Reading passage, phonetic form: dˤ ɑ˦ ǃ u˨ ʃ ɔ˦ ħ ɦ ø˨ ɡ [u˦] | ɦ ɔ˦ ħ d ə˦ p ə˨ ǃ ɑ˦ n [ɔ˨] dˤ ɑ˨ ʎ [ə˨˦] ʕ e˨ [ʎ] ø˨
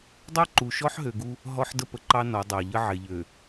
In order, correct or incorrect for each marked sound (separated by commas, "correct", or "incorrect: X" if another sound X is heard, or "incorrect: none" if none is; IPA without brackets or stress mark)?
correct, incorrect: ɔ˨˦, incorrect: ə˦, correct